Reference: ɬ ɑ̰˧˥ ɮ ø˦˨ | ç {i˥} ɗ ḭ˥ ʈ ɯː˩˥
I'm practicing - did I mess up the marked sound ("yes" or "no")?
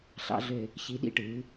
yes